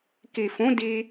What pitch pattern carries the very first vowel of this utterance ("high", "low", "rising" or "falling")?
low